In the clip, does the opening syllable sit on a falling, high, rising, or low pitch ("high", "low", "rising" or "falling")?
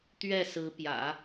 falling